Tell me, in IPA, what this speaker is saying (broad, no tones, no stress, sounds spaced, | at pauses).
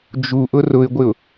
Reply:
d͡ʒ u ʔ ʊ r ʊ ɪ̯ ɡʷ ɪ ʊ̯